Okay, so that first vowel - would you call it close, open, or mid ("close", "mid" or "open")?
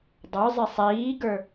mid